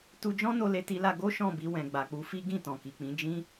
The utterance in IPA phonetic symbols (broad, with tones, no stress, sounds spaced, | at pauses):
t u˧ d͡ʒ ɔ̃˦ n o˦ l e˦ t i˦ l a˦ ɡ o˦ ʃ ɔ̃˦˨ b i˧ w ɛ̃˨ ɡ͡b a˨ k͡p u˨˦ f i˦ ɡ ĩ˦˨ t ɔ̃˨ k i˨ k͡p ĩ˨˦ d͡ʒ ĩ˦